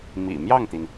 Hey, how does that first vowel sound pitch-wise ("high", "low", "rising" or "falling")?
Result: low